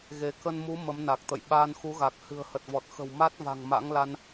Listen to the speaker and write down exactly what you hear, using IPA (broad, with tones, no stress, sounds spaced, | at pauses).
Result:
ɣ e˨˦ k ə˧ n m u˨˦ m ə˨˦ m n a˨˩ k̚ t̪ ə̰˧˨ j ɓ aː˧ n x u˨˦ ɣ a˨˩ k̚ h ɨ̤˨˩ ə̯ h ə˨˩ t̚ v ɔ˨˩ t̚ x ə̤˨˩ w m a˦˥ t̚ v a̤˨˩ ŋ m a̰˧˥ ŋ l a˧ n